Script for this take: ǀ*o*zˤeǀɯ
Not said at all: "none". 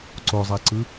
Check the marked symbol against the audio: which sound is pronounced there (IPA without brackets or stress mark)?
o